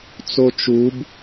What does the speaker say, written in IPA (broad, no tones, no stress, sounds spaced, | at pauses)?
t͡s o t͡ʃ u b